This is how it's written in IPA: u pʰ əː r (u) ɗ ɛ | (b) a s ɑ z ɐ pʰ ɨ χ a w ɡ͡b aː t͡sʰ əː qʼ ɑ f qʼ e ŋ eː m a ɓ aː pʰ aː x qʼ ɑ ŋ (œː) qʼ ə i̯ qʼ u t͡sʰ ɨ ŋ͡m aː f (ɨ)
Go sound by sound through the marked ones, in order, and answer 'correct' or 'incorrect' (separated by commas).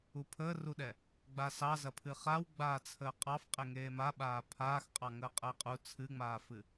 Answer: correct, incorrect, incorrect, correct